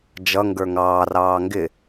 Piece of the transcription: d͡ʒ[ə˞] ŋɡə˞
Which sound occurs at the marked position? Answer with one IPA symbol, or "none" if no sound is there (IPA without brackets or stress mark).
ʌ